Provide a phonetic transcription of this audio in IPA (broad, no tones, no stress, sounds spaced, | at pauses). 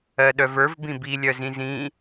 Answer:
ɜ ɗ œ v ə˞ v b ĩ b i lʲ œ z ĩ z ĩ